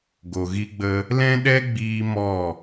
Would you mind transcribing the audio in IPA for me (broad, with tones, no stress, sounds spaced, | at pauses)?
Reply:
ɡ o˨ ɣ i˦ ɡ͡b ə˦ | l ɛ̃˦ ɗ ɛ˦ ɡ͡b iː˧ m ɔ˦˨